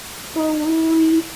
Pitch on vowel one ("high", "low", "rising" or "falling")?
high